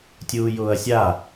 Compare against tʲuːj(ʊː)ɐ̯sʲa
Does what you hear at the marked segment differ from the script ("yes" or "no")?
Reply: no